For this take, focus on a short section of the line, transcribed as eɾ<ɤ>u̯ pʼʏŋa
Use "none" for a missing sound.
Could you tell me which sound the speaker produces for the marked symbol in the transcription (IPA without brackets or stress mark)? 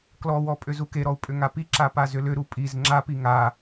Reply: ɔ